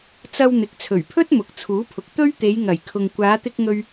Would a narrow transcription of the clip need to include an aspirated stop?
yes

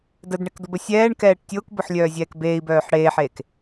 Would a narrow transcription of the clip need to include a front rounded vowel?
yes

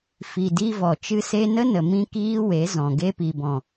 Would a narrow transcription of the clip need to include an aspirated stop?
no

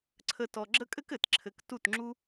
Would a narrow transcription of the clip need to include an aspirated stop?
yes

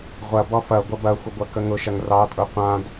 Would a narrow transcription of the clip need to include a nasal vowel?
yes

